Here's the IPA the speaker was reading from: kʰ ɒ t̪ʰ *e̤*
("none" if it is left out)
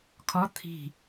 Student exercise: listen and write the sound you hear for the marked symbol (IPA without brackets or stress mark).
i̤